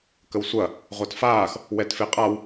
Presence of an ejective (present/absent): present